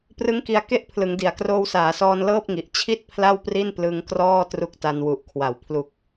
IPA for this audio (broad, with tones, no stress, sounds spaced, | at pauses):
p r ɯ˦˥ ŋ k i˧ a̯ k e˥˩ ʔ pʰ l ɯ˩˦ ŋ d i˩˦ a̯ k r oː˧ w s aː˩˦ s ɔː˧ n l ɤː˥˩ p̚ ŋ i˨˩ ʔ t͡ɕʰ i˥˩ t̚ pʰ l a˥˩ w p r i˥˩ n p l ɯ˧ ŋ k r ɔː˥˩ t r u˦˥ k̚ t a˧ n w u˨˩ ʔ kʰ w a˩˦ w pʰ l u˨˩ k̚